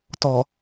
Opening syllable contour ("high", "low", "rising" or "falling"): low